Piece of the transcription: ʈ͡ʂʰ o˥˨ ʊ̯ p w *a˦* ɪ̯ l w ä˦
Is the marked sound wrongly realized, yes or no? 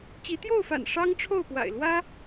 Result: yes